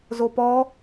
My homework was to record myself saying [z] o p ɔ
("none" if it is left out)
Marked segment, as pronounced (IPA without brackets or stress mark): z